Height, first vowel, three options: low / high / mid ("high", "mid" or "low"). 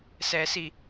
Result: mid